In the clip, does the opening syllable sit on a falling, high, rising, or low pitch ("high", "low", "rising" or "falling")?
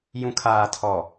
low